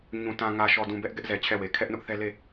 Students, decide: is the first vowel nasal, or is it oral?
nasal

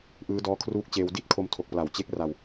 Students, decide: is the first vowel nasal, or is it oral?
oral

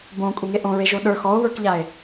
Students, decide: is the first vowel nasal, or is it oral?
nasal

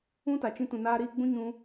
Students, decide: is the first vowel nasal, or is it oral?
nasal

